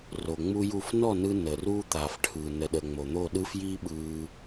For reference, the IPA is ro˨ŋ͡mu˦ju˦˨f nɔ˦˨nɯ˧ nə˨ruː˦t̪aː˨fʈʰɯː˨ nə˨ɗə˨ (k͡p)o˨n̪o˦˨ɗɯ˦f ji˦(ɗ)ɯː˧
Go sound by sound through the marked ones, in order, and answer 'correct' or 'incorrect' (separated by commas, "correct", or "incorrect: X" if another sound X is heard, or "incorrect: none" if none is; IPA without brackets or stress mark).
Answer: incorrect: ŋ͡m, incorrect: ɓ